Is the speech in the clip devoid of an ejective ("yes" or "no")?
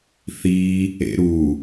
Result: yes